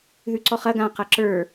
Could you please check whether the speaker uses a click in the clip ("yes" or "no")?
yes